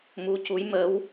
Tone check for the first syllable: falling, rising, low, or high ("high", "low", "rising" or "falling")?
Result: rising